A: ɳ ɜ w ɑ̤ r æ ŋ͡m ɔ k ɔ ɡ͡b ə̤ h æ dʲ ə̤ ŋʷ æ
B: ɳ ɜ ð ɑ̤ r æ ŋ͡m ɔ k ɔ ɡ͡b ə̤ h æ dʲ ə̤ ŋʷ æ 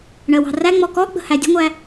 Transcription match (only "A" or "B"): A